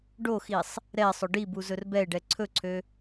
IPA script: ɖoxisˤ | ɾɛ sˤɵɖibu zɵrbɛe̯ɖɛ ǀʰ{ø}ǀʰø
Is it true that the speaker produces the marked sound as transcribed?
no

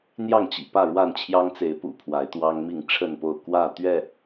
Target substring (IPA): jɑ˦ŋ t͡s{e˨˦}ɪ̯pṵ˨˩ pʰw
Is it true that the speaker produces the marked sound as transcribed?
yes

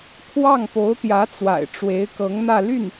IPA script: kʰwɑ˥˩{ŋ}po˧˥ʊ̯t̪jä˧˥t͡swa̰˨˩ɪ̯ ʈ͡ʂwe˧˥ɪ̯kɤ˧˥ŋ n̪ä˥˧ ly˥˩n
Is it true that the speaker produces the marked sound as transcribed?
yes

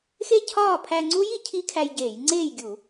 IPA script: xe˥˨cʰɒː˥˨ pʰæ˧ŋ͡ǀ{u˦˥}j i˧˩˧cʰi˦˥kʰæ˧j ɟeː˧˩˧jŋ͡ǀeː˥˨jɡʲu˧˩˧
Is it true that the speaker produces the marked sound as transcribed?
yes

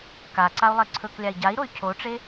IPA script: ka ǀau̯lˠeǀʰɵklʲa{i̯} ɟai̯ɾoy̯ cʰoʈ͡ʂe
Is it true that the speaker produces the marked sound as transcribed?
yes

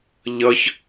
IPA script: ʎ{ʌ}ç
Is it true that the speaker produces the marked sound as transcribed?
yes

